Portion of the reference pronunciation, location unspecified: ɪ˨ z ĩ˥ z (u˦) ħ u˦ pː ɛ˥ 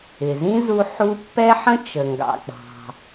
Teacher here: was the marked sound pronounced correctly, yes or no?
yes